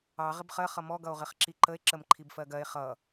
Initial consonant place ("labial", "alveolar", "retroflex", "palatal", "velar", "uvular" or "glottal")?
uvular